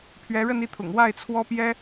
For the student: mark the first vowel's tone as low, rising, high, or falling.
rising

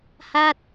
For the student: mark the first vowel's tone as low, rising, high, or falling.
falling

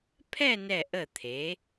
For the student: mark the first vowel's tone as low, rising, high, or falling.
falling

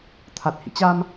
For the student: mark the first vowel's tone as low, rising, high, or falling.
low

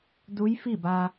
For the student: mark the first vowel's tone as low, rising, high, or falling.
rising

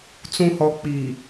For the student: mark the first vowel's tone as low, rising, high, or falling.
low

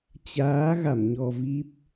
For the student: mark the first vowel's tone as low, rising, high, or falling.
rising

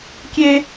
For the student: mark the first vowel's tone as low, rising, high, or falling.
high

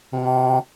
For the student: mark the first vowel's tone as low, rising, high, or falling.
high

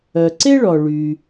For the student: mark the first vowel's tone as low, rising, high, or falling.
low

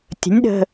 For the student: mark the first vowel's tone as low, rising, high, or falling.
rising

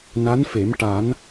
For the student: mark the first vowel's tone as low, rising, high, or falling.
rising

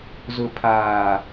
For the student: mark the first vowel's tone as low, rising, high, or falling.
low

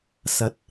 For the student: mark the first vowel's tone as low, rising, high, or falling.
rising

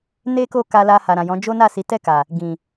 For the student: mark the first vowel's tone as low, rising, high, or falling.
high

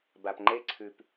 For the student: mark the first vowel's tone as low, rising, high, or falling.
low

